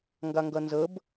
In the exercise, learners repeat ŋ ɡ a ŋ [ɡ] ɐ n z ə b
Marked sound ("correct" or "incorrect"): correct